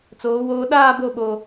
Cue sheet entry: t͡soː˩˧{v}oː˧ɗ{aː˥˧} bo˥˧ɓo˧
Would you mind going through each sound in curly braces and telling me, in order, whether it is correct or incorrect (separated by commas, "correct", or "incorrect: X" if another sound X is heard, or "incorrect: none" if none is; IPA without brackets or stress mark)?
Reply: incorrect: w, correct